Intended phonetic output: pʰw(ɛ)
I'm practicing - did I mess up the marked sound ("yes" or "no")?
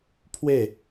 yes